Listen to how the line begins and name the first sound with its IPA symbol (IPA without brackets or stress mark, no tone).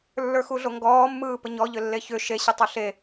lː